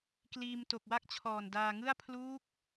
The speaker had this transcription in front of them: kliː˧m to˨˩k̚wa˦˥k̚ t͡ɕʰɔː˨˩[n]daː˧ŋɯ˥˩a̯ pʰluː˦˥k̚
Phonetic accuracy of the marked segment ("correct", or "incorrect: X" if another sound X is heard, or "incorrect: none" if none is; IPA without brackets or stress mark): correct